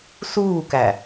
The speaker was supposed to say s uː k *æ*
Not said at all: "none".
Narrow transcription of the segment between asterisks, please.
æ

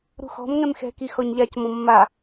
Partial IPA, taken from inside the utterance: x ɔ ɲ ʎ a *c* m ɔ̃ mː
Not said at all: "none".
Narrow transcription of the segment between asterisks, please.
c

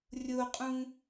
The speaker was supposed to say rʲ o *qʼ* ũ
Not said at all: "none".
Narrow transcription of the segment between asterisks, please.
qʼ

